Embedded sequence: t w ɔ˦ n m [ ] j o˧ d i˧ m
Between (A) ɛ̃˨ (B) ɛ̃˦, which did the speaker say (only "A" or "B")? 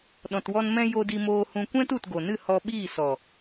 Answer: B